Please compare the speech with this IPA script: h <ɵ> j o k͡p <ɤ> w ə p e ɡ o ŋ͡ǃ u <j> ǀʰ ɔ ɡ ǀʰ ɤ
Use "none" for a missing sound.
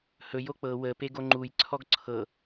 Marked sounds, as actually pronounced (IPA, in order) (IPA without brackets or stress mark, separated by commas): ɵ, ɤ, j